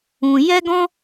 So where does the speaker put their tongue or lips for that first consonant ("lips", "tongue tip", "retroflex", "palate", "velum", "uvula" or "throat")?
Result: palate